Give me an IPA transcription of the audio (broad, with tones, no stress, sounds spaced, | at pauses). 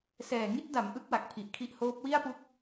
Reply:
s ɛː˨˩ ŋ i˥˩ t̚ d a˩˦ m ʔ ɯ˦˥ k̚ w a˨˩ k̚ pʰ i˨˩ ʔ kʰ i˥˩ ʔ h oː˦˥ p̚ w i˥˩ a̯ p u˦˥ k̚